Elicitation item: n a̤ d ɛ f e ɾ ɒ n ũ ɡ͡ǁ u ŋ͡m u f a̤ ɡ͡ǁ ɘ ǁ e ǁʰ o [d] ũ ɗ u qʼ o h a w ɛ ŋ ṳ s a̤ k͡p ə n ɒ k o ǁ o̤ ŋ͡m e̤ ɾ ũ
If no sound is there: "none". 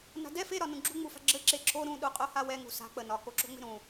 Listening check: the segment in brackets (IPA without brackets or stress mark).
ɾ